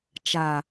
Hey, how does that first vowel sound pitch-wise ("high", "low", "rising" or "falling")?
low